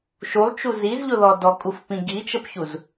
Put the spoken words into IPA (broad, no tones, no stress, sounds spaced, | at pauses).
ʃ u lˠ t͡ʃ u z i z ʎ ʊ ð ɔ d ɔ kʼ u f p ĩ ɡ i t͡ʃ ə p ç u z